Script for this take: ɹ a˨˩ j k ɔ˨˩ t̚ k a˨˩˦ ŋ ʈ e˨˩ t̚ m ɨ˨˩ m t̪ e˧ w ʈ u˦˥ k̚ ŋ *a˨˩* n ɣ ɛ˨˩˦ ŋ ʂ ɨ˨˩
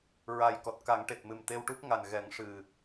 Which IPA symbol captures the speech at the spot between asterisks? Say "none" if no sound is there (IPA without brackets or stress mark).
a˨˩